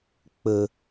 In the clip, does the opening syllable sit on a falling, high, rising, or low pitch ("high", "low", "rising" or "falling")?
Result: low